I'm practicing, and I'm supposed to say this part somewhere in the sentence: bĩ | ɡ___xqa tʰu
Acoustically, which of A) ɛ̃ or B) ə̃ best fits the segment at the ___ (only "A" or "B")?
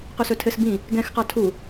A